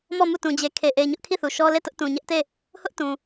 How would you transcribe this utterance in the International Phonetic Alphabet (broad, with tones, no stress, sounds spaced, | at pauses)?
m ɔ˦˨ m u˦˨ t ũ˨ d͡ʑ e˨ kʰ e˨ ʔ e˨ ɪ̯ ɲ ʊ˦ ʔ kʰ i˦˨ θ u˨ ʃ ɔ˦ l e˦˨ t ʊ˦ ʔ t ũ˨ ɲ ɛ˦ ʔ t e˦˨ | h ʊ˦ ʔ t ũ˨